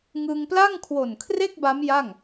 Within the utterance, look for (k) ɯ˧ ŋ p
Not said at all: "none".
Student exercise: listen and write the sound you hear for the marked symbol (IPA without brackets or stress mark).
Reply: ŋ